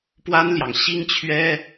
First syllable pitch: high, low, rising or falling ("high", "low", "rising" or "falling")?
high